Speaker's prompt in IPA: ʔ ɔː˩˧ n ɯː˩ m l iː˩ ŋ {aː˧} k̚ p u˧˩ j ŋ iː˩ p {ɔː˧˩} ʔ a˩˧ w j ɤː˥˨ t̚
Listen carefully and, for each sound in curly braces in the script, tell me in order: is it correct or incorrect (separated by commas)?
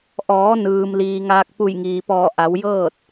correct, correct